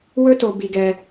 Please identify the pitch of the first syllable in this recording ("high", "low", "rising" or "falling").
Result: high